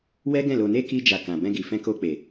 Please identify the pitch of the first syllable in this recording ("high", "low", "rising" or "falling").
high